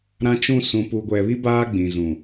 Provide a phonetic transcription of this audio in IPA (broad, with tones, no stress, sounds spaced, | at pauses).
ɾ ã˦ t͡ʃ ũ˦ s ũ˨ p u˨ ɡʷ ɛ˨ β i˦ b aː˦ ɡ͡b ĩ˨ z ũ˨